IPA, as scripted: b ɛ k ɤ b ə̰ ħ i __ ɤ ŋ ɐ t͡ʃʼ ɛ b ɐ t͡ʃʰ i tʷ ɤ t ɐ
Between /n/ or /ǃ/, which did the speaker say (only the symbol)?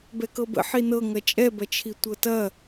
n